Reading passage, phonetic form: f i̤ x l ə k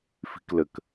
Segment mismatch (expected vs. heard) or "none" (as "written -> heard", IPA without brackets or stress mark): x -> k